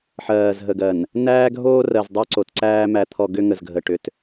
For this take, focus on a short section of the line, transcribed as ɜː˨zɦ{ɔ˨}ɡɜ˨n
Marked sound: incorrect: ə˨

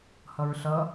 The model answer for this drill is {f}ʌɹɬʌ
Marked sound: incorrect: h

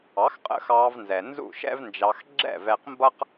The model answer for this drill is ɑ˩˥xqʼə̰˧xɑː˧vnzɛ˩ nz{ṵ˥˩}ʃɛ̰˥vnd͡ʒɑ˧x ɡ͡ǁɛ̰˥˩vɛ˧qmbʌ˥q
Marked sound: correct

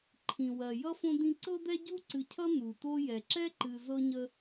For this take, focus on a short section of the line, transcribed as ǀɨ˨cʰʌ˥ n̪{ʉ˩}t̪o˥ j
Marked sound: incorrect: u˩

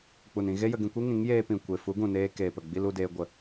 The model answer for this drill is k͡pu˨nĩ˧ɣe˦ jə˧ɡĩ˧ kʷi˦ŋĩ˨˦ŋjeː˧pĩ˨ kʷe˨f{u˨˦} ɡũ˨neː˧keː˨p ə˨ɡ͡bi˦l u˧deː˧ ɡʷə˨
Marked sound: correct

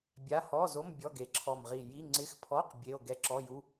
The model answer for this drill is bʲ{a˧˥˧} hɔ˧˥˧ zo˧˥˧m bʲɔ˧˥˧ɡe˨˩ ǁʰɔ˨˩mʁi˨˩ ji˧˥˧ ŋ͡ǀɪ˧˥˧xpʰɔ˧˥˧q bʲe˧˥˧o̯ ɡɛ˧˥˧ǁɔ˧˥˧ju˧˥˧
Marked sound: correct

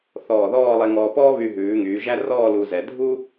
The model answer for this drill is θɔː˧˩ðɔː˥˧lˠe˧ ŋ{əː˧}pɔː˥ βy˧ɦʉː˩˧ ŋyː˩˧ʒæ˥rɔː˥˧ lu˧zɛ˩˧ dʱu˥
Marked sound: incorrect: ɔː˧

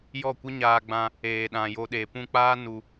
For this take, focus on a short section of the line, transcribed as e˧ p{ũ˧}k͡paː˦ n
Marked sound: correct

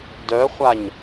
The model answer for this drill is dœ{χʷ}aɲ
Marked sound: correct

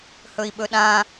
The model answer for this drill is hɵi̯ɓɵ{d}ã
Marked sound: incorrect: ɗ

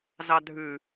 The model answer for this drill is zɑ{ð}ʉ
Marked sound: incorrect: dʱ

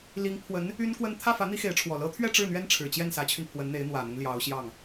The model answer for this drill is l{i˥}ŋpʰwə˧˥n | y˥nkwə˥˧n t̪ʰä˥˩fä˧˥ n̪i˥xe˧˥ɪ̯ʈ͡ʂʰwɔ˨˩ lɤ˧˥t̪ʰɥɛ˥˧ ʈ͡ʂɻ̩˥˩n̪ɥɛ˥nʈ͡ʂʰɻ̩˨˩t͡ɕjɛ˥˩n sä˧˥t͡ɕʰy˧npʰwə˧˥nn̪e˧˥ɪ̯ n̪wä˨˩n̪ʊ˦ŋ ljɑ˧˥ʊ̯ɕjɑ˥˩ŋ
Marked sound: incorrect: i˧˥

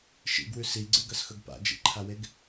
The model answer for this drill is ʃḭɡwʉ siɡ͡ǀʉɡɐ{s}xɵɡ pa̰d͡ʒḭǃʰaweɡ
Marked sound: correct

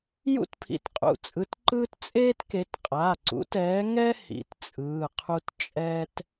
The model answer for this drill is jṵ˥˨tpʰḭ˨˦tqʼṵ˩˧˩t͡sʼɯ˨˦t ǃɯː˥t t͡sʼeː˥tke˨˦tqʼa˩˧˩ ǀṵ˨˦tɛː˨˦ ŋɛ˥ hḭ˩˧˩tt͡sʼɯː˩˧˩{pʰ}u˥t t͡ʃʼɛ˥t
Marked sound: incorrect: qʰ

